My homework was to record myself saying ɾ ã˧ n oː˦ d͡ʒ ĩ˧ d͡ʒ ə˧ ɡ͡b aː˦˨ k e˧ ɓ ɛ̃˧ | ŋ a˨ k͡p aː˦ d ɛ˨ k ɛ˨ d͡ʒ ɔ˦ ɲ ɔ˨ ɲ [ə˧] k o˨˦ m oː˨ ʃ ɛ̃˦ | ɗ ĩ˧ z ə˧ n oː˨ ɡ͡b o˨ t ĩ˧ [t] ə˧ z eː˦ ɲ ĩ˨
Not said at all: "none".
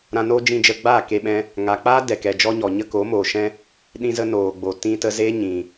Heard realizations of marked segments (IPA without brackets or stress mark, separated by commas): ə˦, t